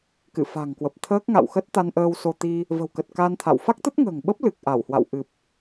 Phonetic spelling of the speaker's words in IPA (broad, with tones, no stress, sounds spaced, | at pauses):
k ɨ̰˧˨ f a̤˨˩ ŋ k w ə˨˩ p̚ t̪ʰ əː˦˥ k̚ ŋ a̰˧˨ w x ə˦˥ t̚ t̪ a˧ n ʔ əː˧ w s o˧ t̪ i˧ | v ə̤˨˩ w k ə˨˩ t̚ k a˧ n t̪ʰ a̰˧˨ w f a˦˥ k̚ t̪ ə˦˥ t̚ ŋ ə̤ː˨˩ ŋ ɓ ə˦˥ p̚ l ɨ˨˩ k̚ ʔ a˧˩ w h w a̰˧˨ w ʔ ɨ˨˩ p̚